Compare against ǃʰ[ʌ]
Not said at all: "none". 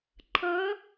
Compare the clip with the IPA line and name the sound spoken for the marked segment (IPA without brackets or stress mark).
ʌ